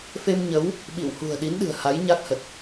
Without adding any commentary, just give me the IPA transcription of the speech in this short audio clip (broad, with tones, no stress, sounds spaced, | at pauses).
f e˧ m ɲ ə˨˦ w | ɓ ḭ˧˨ w h ṳ˨˩ ə̯ ɗ i˨˦ n ɗ ɨ̤˨˩ ə̯ h a˨˦ j ɲ a˦˥ k̚ h ə˨˩ t̚